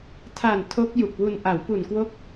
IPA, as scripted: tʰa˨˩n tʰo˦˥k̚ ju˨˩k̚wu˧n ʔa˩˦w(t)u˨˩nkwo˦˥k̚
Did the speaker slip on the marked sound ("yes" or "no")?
yes